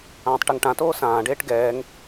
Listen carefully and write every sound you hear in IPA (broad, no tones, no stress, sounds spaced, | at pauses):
ãː tˤ ʈ ɛ ŋ ʈ ã t oː s ãː ɖ eː ʈ ɡ ɛː ŋ